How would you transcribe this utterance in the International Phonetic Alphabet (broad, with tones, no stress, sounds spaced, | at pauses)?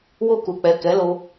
w o˧ k u˨ k͡p ɛ˨ k ɛ˨˦ l o˧